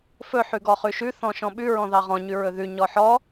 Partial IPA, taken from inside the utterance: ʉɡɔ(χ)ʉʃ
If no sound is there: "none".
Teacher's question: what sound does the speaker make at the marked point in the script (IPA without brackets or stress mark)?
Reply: χ